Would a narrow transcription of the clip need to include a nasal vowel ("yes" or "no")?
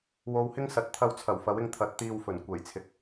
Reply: no